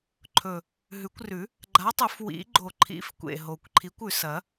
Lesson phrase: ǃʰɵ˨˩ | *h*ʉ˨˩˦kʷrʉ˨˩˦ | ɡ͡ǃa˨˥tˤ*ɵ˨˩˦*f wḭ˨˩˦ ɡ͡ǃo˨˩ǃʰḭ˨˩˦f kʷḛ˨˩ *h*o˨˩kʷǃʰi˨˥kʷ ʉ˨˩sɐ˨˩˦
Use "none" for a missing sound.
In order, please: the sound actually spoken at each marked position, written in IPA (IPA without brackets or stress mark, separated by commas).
ɦ, ɵ˨˩˦, ɦ